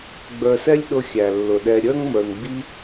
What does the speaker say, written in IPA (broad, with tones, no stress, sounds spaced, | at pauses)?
ɡ͡b ə˞˨ s ɛ˦ lʲ ɗ ʊ˧ xʲ æ˨ lː ʊ˨ ɗ ɛ˧ ɾʲ ə˞˦ ŋ m ə˞˨ ŋ ɡ͡b i˦